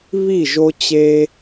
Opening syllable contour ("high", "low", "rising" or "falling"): falling